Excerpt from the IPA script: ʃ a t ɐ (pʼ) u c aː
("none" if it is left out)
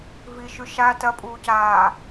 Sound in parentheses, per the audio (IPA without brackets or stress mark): pʼ